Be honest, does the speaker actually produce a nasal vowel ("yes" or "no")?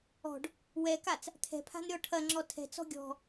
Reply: no